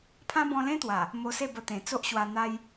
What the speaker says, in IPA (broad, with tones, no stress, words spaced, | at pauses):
pʰã˦bɔ̃˧lẽ˦t̪wa˨˩ | mo˧se˥˧ bə˧t̪ẽ˨˩ t͡so˦ʔɕwa˧ n̪a˦j